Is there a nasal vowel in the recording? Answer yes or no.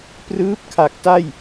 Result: no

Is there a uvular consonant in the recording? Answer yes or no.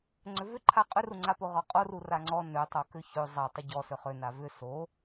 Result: yes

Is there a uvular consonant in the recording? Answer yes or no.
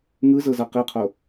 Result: yes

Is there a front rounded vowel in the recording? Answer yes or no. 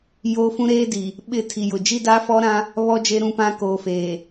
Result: no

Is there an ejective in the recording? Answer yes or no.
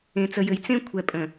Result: yes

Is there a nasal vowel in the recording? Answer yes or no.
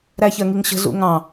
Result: yes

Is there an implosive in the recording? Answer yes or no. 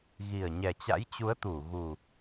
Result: no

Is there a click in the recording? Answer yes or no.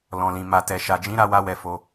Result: no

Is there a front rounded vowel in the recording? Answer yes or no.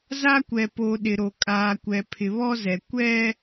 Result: no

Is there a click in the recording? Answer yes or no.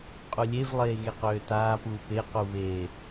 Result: no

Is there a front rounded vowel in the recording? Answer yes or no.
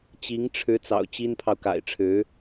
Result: no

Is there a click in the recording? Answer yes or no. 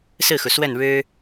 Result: no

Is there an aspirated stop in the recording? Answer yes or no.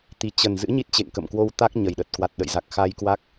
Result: no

